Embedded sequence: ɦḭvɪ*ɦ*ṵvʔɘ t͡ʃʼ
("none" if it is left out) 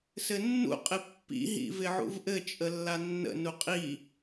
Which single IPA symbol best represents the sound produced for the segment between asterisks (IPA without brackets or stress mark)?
ʕ